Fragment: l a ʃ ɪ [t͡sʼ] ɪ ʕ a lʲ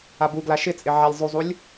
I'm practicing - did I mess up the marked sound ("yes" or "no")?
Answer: no